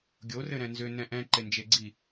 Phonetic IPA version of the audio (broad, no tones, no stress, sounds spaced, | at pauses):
ɡʲ o r ɘ ɾ ɛ̃ n z ʏ n ɛ̃ ʔ ɛ̃ ǃ e n d͡ʒ e ɡ͡ǀ i